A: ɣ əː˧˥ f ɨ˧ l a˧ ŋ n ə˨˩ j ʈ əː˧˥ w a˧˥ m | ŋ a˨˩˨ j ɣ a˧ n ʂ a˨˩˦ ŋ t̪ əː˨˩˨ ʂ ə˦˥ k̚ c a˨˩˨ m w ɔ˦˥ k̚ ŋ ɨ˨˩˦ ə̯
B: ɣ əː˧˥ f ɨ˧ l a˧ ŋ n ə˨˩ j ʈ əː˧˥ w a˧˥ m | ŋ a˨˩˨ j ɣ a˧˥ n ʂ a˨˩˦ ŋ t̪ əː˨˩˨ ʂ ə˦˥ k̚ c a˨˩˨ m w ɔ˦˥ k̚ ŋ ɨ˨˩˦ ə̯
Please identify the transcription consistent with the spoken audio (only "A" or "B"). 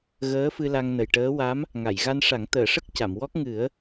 A